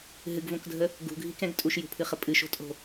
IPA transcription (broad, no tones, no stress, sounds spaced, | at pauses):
ɦ ɨ ɡ v õ k dʱ ə | ɡ ṳ ɡʱ i k ɛ̃ ɡ tʼ u ʃ j ṳ pʰ ɨ χ ə pʼ ɨ ʃ o̤ tʼ o̤